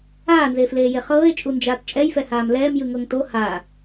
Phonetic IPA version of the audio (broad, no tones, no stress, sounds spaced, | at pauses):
aː n z eː f l eː j e χ ɤː e̯ t͡ʃʼ u n d͡ʒ aː t t͡ʃʼ ɛ j f ɛ h aː m l ɛː m j ɯ ŋ ɤ ŋ t o h a